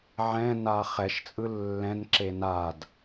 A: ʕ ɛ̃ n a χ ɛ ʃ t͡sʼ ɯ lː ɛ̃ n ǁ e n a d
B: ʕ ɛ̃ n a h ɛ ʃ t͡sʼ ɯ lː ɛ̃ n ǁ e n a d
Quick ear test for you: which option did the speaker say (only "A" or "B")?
A